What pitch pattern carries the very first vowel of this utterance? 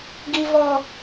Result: high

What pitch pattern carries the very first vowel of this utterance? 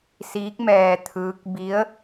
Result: rising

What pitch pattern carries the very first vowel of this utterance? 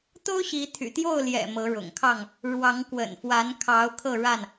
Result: high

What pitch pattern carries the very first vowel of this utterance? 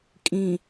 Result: low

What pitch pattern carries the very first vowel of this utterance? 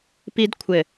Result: high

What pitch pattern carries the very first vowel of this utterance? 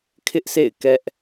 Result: high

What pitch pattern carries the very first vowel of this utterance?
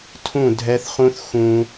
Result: falling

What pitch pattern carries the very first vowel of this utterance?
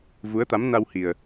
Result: rising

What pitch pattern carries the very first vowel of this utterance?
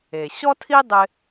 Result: low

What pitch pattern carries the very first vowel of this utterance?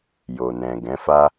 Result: low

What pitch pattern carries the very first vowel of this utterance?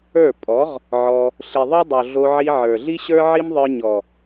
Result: falling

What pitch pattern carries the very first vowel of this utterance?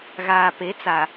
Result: low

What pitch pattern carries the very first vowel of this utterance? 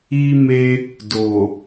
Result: high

